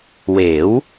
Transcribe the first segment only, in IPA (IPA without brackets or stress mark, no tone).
w